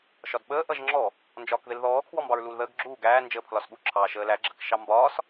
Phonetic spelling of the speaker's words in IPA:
ʃɒdɓəː ʔʌʒŋ͡ǁɔ | nd͡ʒɒːkðɪlðɔː kʰwɔmbɑɹluːlðəːɡ ɡ͡ǁuː ɡæː nd͡ʒəːpʰlɒsɠu ǁʰɑːʃəːlæ ɡ͡ǁəkʃɑmbɒːs

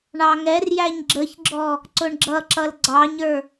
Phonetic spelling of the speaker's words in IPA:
ɳɑŋɛrjæɲ ɡ͡ǁəçɡ͡ǁɔ | ǀʊɳɡ͡ǁʌǁʌl ɡ͡ǀɑɲə˞

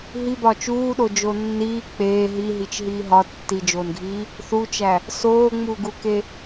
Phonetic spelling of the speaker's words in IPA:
ɦibɒ t͡ʃuːɗod͡ʒo nːiː k͡peː ɦiɦit͡ʃɦiː ɦɒ tːid͡ʒoːnɡʱiː | θut͡ʃæ | soːŋ͡muːɡuke

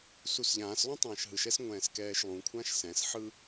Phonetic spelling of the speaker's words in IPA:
susʎãːslˠũ tˤãːʃɦɯʃɛs ŋʷɛ̃ːskɛːʃlˠũkʷʰãʃ sɛ̃sħɯ

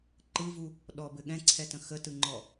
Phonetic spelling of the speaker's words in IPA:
ǃɯvu | ɗɔbɘ ɠɛ̃ǀʰɛtə̃ xətɯŋ͡ǃɔ

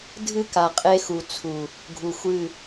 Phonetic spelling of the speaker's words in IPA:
dʱɨ˦ka˨qʼe˦xu˨ t͡sʰu˨ | ɡʱu˨xʷɨ˦˨

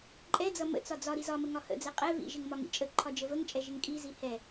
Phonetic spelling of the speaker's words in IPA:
ǃʼɛd͡zʌ mə̰t͡sɒ d͡zɒ ɾizɒmə ŋɒhə̰d͡zɛ qʼɛ vḭʒɪŋ mɒŋḭt͡ʃʼəǃʰɒ d͡ʒəvəŋt͡ʃʼɛ ʒɪŋkʼizi hɛ

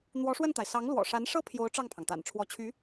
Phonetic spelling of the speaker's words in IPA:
n̪wɔ˧˥ʂwə˥˩nt̪a˩ɪ̯ sɑ˧˥ŋlwɔ̰˨˩ʂa˧˥n ʂɤ˥pʰjo˧˥ʊ̯ ʈ͡ʂɑ˥˩ŋpʰɑ˩ŋt̪a̰˨˩n ʈ͡ʂʰwɔ˧˥t͡ɕʰy˧˥

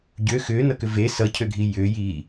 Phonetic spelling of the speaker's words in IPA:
ɟø xʏːnʌkʏ ve sʌcʰøɡʱi jʏjiː

